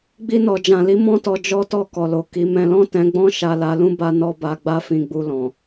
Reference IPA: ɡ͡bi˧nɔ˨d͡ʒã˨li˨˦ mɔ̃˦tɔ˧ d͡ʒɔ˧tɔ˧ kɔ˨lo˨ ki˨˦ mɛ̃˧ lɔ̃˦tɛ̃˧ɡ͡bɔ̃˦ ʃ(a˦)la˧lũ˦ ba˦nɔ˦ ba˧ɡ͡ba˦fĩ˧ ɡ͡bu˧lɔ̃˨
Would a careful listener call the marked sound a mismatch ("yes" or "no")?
yes